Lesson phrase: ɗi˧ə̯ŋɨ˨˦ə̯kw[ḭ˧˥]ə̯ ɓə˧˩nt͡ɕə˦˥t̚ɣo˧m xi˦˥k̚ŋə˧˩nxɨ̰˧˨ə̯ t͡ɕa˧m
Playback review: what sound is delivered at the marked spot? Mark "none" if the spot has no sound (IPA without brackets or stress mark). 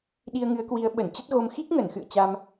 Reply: i˨˦